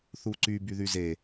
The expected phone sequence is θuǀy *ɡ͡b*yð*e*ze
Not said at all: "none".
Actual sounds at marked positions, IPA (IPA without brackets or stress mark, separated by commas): b, y